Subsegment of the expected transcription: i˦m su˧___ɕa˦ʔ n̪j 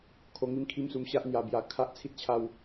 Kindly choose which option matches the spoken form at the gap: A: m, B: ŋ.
A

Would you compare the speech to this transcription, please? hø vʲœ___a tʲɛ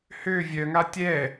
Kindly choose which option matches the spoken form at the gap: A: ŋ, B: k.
A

